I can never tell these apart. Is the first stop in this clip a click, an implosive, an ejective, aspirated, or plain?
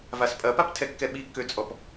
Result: ejective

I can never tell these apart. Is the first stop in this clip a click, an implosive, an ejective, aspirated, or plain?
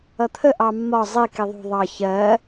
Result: aspirated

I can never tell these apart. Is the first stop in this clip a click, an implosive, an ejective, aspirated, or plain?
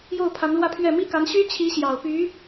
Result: aspirated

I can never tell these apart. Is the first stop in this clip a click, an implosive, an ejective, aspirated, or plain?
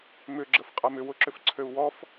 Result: click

